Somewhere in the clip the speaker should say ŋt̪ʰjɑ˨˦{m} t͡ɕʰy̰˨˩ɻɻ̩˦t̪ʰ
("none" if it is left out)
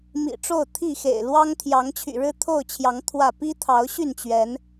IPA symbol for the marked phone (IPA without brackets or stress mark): ŋ